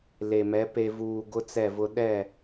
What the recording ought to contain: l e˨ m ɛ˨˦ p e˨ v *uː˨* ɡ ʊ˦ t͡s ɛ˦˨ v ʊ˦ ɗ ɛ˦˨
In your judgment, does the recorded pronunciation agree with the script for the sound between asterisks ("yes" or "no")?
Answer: yes